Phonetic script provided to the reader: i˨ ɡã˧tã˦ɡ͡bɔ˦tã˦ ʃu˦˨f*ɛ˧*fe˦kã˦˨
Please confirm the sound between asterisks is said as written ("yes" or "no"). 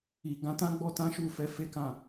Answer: yes